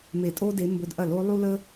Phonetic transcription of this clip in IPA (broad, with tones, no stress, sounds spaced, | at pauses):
m e˧˩˧ tʼ o˦ d e˨˦ m b ɵ˨˦ d ʔ ɐ˧˩˧ l o˨˦ lˠ u˦ l ə˦